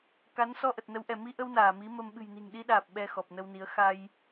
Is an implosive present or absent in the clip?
present